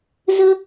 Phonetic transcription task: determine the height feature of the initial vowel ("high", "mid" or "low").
mid